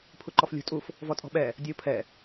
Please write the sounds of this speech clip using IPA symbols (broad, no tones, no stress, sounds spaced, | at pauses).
pʰ u ǃ ɔ f lʲ ṳ tʼ u f | v ɔ tʼ ɔ̤ ɓ ɛ | dʲ ʌ u̯ pʰ ɛ